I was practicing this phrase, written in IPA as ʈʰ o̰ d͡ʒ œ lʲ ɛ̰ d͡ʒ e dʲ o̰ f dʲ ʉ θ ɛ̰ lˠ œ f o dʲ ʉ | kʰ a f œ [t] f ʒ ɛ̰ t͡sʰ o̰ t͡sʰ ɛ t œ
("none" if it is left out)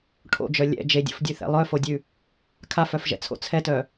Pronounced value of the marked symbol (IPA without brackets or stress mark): none